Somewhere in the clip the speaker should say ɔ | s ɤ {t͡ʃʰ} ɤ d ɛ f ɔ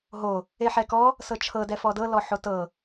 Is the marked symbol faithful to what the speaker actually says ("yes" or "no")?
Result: yes